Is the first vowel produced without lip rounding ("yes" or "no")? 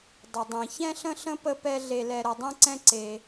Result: yes